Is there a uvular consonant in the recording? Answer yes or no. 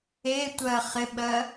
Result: yes